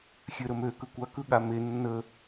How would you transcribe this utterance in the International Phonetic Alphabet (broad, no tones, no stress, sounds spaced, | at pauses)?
xʲ ø ɾ ə m ø k ɯ kʷ a k ɯ ɠ a m e nː ə